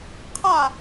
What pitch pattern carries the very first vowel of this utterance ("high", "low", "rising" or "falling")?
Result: falling